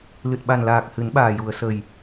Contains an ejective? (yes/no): no